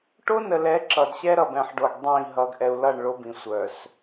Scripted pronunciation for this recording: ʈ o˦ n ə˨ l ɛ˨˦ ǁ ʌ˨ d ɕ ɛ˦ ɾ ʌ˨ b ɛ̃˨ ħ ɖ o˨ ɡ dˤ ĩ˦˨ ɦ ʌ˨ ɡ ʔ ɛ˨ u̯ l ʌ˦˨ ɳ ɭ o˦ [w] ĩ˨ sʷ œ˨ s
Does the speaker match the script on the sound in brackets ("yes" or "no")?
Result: no